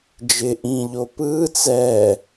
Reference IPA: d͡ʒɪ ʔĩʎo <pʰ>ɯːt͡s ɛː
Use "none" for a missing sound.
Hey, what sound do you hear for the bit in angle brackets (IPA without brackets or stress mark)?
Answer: p